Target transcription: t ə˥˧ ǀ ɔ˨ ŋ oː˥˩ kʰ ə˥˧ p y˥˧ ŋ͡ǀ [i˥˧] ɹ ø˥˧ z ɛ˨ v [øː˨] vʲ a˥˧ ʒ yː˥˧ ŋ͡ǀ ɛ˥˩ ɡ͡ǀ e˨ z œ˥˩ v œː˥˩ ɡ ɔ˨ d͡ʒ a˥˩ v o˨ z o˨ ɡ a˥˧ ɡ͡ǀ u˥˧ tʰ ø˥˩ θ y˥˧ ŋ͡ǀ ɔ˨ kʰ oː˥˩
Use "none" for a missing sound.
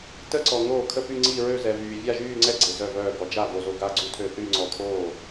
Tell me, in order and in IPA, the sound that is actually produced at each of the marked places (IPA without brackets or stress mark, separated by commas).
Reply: i˥˧, yː˨